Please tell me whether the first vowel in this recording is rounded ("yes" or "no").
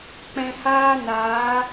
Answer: no